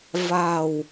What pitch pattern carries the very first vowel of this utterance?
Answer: low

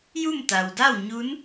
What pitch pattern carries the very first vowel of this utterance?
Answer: falling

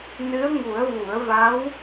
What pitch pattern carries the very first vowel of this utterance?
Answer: rising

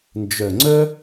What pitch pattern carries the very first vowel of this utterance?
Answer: low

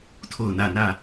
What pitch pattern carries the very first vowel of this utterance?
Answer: falling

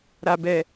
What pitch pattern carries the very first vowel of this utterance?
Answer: low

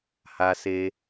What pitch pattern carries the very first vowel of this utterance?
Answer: low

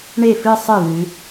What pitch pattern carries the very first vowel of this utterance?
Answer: falling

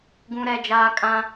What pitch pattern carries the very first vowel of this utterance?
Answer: high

